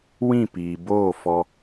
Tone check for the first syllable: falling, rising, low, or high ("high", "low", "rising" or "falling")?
falling